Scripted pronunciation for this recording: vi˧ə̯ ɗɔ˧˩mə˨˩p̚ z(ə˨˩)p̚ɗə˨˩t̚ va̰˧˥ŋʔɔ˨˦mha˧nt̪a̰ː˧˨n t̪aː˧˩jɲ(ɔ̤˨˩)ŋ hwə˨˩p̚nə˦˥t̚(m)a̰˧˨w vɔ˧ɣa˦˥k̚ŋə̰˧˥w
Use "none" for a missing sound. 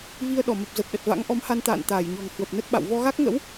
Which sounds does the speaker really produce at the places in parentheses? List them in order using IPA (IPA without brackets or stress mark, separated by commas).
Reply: ə˨˩, ɔ̤˨˩, ɓ